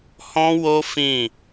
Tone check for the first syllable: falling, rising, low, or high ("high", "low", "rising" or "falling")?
high